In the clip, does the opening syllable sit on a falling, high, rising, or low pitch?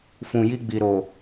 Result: low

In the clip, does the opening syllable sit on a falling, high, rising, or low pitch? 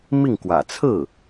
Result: falling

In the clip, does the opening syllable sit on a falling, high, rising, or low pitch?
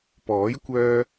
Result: rising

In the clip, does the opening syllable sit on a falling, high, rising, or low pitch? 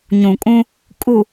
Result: low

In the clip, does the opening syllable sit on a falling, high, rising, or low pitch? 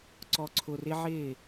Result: low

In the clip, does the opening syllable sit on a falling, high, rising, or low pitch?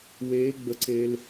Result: rising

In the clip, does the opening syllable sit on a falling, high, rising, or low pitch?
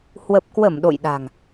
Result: low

